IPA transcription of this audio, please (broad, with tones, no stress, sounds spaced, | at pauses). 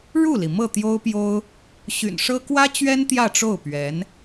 ɻ u˥˩ l i˩ m ɤ˥˩ t̪ j o˥ ʊ̯ p j o˥ ʊ̯ | ɕ y̰˨˩ n ʂ ɤ˥ k w ä˥ t͡ɕ ɥ ɛ˥ n t̪ j ä˥˧ ʈ͡ʂ o˥˩ ʊ̯ p ɥ ɛ˧˥ n